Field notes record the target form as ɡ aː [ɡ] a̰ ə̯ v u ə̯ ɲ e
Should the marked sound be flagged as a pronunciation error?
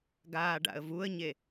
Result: yes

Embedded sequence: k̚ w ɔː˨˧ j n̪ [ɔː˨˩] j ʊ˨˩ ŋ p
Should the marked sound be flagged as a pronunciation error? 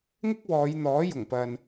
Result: yes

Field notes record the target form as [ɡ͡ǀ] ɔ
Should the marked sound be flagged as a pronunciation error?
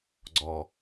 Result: no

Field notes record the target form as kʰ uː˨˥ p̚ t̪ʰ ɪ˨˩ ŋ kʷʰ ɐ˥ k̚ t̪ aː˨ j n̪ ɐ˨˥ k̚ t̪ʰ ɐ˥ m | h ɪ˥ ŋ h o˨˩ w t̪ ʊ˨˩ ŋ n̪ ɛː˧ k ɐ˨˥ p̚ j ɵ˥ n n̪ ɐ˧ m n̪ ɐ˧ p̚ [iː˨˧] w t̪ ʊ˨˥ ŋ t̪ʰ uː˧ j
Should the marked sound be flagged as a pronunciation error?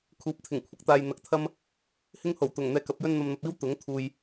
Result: yes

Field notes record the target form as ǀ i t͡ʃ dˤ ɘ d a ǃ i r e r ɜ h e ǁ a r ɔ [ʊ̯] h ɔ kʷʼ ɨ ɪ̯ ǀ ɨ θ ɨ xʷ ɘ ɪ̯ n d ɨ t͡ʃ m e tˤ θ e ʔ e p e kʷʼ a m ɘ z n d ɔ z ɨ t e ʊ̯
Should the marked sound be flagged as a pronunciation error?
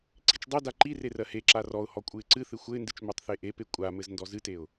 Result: no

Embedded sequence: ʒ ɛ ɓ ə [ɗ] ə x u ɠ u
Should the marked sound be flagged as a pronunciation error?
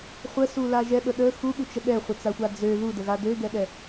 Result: no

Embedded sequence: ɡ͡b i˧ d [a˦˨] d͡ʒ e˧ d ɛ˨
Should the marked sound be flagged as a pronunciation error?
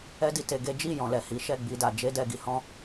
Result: yes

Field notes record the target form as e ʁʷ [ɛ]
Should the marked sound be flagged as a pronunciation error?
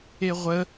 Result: yes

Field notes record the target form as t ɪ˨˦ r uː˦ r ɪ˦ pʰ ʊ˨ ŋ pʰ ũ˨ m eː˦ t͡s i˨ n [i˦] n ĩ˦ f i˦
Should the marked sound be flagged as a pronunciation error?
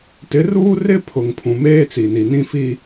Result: yes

